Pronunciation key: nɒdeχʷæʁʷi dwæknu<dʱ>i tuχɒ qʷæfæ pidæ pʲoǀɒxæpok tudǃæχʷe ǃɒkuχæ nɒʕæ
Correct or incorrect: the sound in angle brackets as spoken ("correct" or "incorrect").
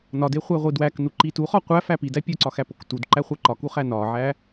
incorrect